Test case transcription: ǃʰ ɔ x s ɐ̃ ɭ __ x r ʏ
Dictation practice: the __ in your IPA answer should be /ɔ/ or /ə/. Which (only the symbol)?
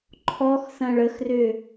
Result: ə